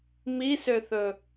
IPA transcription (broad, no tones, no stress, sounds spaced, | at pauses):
m i s ø θ ɵ